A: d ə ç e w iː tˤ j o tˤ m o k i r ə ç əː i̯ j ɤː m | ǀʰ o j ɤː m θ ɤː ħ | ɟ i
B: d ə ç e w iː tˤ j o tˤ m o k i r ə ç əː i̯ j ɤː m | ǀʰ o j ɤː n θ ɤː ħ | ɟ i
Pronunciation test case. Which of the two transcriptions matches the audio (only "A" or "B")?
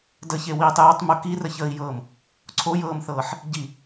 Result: A